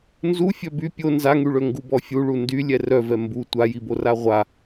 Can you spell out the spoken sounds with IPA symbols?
n z u fʲ œ b y pʲ o n z a ŋ y ɭ ø ŋ ɡ u b ɔ fʲ u ɭ u n d y lʲ ɛ r œ v ɛ m b u tʷ a j i b o r a ʁʷ a

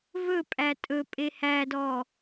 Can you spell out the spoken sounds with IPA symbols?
v ɵ pʼ æ tʼ ɵ pʼ e h æ d ɔ

